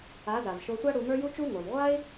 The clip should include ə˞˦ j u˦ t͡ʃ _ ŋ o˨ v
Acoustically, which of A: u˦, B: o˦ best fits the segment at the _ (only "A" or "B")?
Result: A